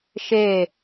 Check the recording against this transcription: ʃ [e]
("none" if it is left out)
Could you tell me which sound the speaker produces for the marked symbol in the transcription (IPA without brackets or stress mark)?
e